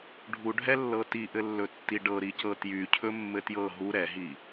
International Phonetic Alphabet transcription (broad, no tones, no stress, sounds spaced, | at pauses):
ɖʱ u ɖʱ ɛ lː ɤ t i ʔ ɘ lː ɵ tː i ɖ ɤ ɾ i c ɤ t j y cʰ ɵ mː ɘ t j ɤ ɦ u ɾ ɛ ɦ i